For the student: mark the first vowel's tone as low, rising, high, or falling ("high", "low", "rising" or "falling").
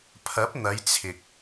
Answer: rising